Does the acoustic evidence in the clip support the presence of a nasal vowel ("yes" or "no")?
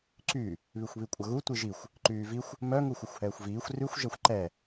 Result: no